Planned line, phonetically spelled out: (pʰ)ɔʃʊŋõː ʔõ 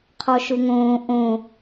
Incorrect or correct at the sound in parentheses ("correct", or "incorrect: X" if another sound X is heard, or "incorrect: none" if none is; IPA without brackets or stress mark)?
incorrect: qʰ